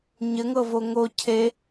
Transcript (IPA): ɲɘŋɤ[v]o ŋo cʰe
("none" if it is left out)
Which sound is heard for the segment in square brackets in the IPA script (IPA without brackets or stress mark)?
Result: v